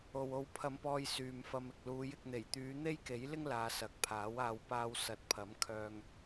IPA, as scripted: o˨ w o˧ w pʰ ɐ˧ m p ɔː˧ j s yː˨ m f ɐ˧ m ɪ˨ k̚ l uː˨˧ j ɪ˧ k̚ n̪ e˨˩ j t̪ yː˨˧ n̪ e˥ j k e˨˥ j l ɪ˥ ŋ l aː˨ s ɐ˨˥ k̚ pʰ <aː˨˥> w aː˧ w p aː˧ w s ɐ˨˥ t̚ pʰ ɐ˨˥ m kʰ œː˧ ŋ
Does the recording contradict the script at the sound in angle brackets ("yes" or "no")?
no